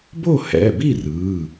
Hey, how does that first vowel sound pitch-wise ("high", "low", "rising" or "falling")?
falling